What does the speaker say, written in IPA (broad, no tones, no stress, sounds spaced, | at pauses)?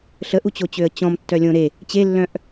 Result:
ɬ ə ʔ u t͡ɕ o t͡ɕ ø ə̯ t͡ɕ ɔ̃ m tː œ lʲ õ ɾ e | t͡ɕ e lː œ̃ ʔ